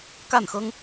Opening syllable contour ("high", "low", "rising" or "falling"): falling